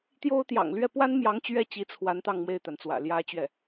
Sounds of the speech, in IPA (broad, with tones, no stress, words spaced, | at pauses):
t̪jo˥ʊ̯t̪jɑ̰˨˩ŋ lɥɛ˥˩pwa˥nmjɑ˧˥ŋ t͡ɕɥɛ˥˩t͡ɕi˧˥t͡sʰwa˧˥n t̪ɑ˥˧ŋmwe˥˩ɪ̯t̪a˩n t͡swä̰˨˩ljä˥t͡ɕɥɛ˥˩